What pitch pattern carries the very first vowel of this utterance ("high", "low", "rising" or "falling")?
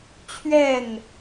falling